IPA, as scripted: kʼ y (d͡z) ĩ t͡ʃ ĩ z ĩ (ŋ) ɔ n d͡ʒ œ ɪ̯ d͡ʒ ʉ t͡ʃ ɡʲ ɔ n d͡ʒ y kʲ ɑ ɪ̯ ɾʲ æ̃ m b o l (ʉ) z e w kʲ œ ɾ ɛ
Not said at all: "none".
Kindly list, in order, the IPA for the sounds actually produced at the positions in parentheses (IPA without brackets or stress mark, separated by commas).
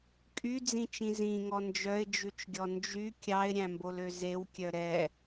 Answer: d͡z, ŋ, ø